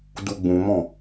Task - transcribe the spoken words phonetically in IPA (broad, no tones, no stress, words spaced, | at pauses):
duɡ͡bũmɔ̃